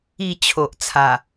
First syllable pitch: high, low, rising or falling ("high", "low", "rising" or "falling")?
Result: falling